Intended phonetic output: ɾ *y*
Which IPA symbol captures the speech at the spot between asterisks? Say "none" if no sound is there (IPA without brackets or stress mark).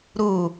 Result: u